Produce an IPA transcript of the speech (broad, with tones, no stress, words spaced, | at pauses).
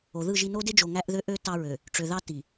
o˨ðɯ˦˨ʒ i˦˨no˦de˦d͡ʒo˨ ŋæ˦ʔðø˦ʔø˦ tɑ˦ɹø˨ | ʈ͡ʂø˨ðɑ˦ ti˨